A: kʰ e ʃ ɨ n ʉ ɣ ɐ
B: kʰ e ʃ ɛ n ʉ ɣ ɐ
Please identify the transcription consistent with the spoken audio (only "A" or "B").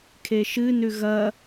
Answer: A